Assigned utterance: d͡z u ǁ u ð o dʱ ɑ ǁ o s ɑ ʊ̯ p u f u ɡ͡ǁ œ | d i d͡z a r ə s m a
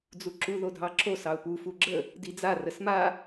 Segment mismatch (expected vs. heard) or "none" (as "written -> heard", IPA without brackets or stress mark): œ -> ə